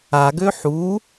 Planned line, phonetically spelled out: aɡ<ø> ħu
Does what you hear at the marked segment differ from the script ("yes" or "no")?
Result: no